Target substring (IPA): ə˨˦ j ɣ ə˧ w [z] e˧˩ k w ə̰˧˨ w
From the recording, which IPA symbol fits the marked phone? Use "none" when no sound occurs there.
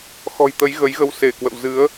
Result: s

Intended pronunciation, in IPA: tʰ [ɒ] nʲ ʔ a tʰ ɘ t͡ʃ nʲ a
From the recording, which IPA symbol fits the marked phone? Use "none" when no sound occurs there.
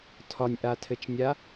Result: ɒ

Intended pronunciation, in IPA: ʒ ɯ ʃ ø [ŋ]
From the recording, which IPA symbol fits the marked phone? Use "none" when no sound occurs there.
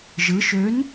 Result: n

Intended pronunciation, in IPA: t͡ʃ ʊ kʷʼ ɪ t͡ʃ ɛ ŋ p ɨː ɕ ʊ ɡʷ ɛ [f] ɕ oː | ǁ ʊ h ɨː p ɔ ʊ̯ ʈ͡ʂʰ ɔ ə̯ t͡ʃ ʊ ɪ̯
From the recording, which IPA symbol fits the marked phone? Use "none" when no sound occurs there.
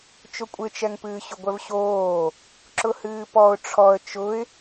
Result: v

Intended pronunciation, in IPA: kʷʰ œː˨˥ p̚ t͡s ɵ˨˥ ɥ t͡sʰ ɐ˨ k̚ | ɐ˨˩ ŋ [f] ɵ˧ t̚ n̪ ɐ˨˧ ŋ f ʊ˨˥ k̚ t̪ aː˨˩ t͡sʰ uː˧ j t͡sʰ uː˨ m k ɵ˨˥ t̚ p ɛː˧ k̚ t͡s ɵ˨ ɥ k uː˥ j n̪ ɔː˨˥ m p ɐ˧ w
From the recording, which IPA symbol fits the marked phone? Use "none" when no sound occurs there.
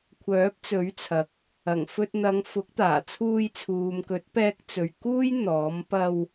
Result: f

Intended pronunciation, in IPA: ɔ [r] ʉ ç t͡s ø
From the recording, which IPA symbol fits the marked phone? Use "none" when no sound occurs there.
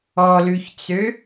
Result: l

